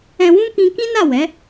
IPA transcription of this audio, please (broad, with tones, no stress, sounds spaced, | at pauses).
ɛ̃˧ w ũ˦ k ĩ˧ k ĩ˦ n a˦˨ w ɛ˨˦